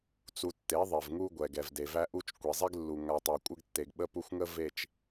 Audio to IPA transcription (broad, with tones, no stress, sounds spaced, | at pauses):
t͡s u˨ tː e˨˦ ðˤ e˨ v ŋ u˦ ɡʷ ɛ˨ ɡ ɛ˨ v d e˨ v æ˦ ʔ u˦ t͡ʃ kʷ e˨ zˤ e˦ ɡ lː u˨ ŋ a˦ tˤ a˦ kʷʼ ə˦ ɡ tː e˨ ɡ ɓ ə˦ p u˦ xʷ ŋ ə˦ v e˨ t͡ʃ